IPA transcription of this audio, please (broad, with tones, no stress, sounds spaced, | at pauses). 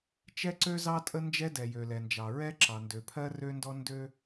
t͡ʃ ɛ˥ ǀ ø˥ z ɑ˥ tʼ ə˥ n d͡ʒ ɛ˥ d ɛ˩ j ø˩ l ɛ˩ n d͡ʒ ɑ˩ ɹ ɛ˥ ǁ ɑ˩ n d ø˩ pʰ ɜ˥ r ø˥ n d ɔ˥ n d ø˥